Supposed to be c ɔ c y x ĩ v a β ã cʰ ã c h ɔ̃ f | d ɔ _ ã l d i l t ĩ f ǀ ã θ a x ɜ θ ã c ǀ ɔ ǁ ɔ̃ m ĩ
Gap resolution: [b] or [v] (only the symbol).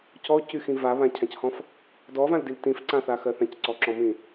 v